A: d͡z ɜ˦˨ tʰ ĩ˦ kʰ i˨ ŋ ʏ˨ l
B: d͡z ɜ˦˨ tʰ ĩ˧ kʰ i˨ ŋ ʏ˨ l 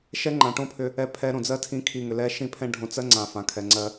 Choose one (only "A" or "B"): B